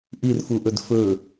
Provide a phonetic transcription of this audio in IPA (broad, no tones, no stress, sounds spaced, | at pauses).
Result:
ʔ i r f u ʔ ɵ d f ɵ